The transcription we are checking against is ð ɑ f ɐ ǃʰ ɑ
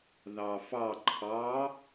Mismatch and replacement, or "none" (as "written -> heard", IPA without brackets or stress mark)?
ɐ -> ɑ